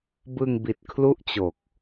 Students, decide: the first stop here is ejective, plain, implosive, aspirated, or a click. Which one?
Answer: plain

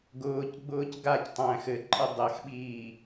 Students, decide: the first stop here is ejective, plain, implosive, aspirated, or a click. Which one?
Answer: plain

